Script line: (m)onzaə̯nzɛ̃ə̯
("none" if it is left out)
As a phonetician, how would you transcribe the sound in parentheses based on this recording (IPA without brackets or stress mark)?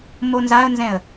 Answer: m